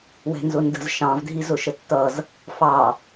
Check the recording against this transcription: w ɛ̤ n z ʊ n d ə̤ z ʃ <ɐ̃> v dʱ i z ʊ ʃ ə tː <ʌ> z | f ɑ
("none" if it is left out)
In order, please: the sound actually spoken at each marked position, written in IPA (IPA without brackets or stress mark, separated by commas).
ɑ̃, ʌ